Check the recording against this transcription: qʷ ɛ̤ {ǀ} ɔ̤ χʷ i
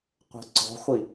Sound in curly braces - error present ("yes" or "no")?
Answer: no